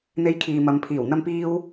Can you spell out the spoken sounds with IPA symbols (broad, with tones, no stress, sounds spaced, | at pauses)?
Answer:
n̪ e˥ j kʰ iː˧ m ɐ˨˧ m pʰ iː˨˩ w n̪ ɐ˥ m p iː˥ w